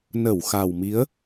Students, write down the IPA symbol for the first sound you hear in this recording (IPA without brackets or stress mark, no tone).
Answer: n